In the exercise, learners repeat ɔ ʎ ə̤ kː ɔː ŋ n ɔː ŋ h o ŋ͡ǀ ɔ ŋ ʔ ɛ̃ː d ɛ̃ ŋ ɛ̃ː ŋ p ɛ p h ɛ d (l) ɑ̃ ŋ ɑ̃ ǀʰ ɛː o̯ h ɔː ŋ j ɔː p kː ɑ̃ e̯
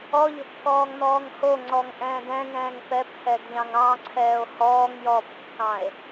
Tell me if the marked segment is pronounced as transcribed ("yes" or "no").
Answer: no